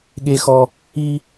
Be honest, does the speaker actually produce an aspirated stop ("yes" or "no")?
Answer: no